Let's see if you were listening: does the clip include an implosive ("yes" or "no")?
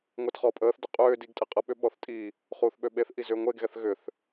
yes